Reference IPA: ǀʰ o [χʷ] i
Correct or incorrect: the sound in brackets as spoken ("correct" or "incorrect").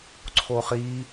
incorrect